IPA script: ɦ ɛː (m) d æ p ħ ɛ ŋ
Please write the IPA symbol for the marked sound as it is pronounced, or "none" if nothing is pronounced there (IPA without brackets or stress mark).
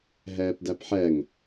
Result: p